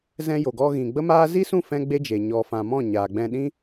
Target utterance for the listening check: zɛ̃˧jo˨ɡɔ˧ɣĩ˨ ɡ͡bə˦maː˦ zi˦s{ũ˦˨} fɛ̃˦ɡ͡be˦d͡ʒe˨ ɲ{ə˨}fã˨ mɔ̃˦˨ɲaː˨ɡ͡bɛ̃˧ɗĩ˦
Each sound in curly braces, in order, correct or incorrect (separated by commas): correct, incorrect